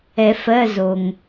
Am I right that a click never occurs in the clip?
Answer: yes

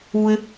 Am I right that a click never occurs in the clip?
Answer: yes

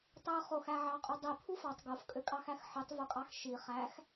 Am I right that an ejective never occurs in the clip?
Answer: no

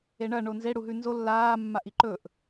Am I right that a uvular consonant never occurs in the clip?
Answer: yes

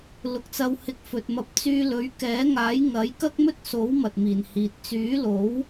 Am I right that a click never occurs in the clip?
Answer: yes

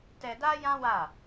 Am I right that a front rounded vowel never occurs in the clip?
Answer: yes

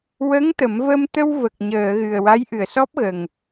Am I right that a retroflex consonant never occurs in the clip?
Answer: yes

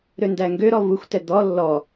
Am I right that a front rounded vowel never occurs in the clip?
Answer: no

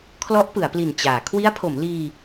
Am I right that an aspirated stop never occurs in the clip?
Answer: no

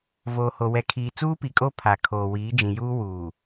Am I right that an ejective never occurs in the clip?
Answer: no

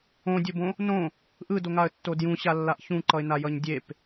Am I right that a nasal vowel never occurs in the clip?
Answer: no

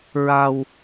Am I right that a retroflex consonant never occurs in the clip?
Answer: yes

